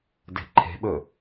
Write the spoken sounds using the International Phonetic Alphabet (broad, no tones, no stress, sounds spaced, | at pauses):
d e̤ ǃʰ e̤ ɓ ɵ